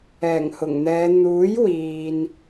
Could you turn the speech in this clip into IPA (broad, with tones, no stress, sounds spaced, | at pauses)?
ɛː˨˩ ŋ h ʊ˨˩ ŋ n̪ ɛː˨˧ n̪ uː˨˥ j w iː˨ n